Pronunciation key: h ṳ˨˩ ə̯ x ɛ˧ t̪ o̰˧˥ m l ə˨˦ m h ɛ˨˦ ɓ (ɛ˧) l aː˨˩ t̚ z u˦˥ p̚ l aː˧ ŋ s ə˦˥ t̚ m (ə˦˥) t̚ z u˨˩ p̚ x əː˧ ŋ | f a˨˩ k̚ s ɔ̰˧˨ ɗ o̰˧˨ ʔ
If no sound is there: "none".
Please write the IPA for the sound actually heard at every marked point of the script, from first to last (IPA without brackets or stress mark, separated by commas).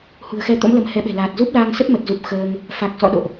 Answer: ɛ̤˨˩, ə˨˩